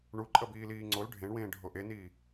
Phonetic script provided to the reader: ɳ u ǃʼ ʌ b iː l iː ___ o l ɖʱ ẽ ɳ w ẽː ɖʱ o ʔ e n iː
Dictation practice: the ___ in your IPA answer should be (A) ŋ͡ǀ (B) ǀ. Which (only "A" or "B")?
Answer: A